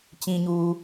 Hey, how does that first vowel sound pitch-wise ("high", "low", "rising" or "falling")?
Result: low